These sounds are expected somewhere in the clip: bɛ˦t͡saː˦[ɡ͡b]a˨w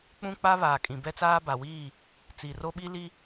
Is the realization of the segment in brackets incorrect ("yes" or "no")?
yes